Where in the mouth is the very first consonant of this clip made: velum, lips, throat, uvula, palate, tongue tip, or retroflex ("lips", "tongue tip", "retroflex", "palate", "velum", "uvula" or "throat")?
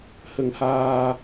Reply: throat